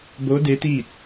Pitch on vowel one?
rising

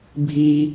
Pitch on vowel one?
high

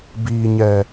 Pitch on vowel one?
low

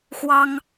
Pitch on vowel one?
high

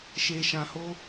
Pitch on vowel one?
low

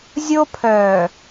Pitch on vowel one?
high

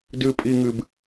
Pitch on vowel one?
low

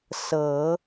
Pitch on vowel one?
low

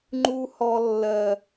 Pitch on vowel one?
high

